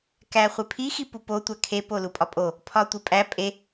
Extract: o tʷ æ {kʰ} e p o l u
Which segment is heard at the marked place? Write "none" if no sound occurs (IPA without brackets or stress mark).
kʰ